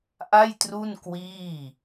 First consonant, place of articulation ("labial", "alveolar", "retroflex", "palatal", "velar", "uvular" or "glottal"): glottal